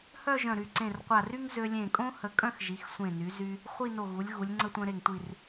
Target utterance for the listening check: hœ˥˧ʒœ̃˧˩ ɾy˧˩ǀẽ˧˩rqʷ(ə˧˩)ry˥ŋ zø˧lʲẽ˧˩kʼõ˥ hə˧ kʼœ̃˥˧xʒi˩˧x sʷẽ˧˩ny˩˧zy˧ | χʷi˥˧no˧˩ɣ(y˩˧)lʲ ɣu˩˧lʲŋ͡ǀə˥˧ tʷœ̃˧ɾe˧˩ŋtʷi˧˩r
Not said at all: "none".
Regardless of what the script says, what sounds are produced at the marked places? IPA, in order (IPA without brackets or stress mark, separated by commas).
a˧˩, u˩˧